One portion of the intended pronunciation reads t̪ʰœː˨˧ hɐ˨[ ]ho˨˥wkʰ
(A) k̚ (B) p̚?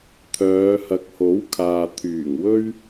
A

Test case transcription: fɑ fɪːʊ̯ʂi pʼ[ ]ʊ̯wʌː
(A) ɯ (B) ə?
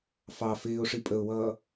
B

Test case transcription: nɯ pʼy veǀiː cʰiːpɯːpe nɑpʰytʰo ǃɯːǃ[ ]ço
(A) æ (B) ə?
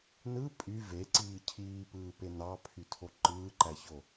A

